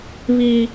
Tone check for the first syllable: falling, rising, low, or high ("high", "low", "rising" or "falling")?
high